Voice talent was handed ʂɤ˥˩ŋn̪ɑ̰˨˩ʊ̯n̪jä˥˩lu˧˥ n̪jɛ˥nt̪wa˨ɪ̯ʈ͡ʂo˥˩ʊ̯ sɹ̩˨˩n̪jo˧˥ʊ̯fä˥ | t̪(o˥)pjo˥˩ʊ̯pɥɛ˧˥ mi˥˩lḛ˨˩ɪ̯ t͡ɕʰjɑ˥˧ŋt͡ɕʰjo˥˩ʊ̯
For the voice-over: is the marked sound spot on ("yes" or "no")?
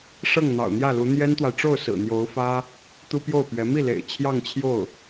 no